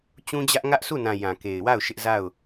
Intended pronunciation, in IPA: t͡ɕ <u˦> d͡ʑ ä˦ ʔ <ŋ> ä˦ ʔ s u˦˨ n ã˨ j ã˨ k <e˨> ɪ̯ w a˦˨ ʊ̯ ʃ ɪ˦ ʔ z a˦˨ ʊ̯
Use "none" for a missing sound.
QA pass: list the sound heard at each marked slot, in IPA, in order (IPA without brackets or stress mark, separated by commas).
ũ˦, ŋ, e˨